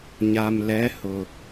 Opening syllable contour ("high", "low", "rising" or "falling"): low